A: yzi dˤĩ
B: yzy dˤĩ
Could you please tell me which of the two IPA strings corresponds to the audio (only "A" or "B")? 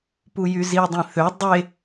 A